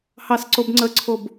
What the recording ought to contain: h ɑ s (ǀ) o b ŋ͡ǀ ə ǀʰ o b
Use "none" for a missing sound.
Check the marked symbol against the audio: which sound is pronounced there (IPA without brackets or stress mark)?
ǀ